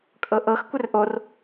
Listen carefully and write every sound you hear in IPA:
kʼ ɤ ʔ ɤ x kʷ ɪ r ʔ o r

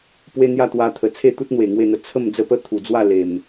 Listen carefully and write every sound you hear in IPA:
p w e˦ n̪ j a˥˧ t̪ w a˧ t̪ʰ ə˨˩ t͡sʰ e˥˧ t̪ u˦ t̚ n̪ w e˨˩ ŋ w e˥˧ n̪ ə˧ t͡sʰ ə˥˧ m d͡z ə˦ p ə˦ t̪ʰ u˨˩ d͡z w a˥˧ l e˨˩ m

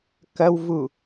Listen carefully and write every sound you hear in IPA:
k ɐ w v u

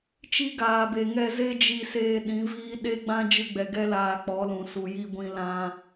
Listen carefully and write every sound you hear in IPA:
t͡ʃ i˦ ɡ aː˨ b e˨ ŋ ɛ˧ z e˦ d͡ʒ i˧ s eː˧ ɗ ĩ˨˦ v iː˦ ɗ e˦ ɡ͡b ã˦ d͡ʒ ɨ˧ ɡ͡b ɛ˨ ɡ ɛ˦ l aː˧ k͡p ɔ˨˦ l ũ˨ s u˨ j i˧ ɡʷ ĩ˧ l ã˧

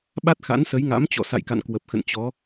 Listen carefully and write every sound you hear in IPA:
ɓ a˦˥ t̚ x a̰˧˥ n s ə˨˦ j ŋ a̰˧˥ m t͡ɕ ɔ̰˧˨ s a̰˧˨ j k a̰˧˨ n k w ə˨˩ p̚ x ə̰˧˨ n t͡ɕ ɔ˨˦

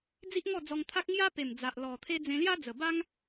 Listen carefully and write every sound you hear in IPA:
d͡z i˦ ʔ ŋ ɔ˥˧ d͡z ɔ˧ ŋ t̪ʰ a˦ k̚ ŋ j a˦ p e˨˩ m d͡z a˨ ʔ l ɔ˨˩ t̪ʰ e˧ d͡z ẽ˧ l j a˦ d͡z ə˨˩ b a˦ ŋ

